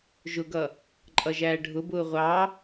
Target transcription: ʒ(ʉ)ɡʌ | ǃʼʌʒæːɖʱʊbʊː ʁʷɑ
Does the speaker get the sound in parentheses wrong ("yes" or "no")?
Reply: yes